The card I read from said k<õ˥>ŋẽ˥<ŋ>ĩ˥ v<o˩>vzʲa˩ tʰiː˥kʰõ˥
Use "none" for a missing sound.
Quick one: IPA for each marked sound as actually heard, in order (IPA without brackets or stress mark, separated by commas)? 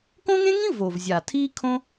õ˥, ŋ, o˩